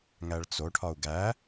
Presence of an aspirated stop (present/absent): present